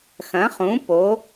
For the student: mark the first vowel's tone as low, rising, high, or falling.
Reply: rising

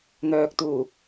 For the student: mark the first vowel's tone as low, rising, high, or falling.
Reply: low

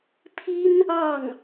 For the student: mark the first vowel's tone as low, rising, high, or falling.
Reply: high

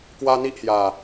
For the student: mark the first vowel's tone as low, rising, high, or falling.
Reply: high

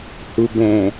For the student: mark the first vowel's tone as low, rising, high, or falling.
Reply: low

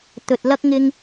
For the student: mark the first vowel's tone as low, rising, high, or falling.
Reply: low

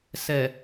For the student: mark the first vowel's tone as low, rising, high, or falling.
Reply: low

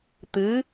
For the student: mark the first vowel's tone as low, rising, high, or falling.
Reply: rising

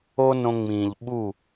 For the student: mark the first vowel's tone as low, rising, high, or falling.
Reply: high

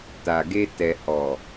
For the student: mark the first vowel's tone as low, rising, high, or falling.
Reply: low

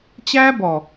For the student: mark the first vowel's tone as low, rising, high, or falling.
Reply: high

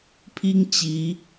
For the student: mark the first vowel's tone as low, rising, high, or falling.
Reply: high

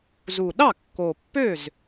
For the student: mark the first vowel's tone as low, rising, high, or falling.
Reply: low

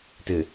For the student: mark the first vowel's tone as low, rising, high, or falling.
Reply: low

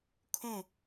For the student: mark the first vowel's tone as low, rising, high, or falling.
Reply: falling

